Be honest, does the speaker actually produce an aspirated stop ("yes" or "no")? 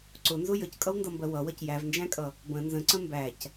no